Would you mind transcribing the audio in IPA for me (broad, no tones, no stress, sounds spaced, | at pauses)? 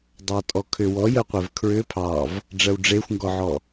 dˤ ɑ tʼ ɔ kʰ ʏ w ɔ j ɜ qʷ ɛ v kʰ ɹ ʏ pʰ ɑ v | ɖ͡ʐ ɜ w ɖ͡ʐ e xʷ ŋ ɡ ɔ ʕ ɔ